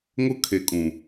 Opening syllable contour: high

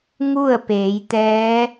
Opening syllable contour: falling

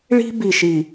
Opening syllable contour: high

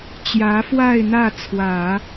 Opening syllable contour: rising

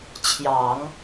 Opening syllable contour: low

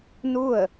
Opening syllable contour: falling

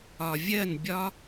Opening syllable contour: low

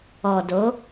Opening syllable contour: low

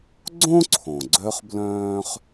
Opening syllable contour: high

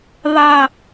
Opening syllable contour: falling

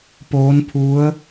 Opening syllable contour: rising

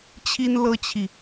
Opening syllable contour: high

